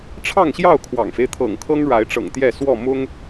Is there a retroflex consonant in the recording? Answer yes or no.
yes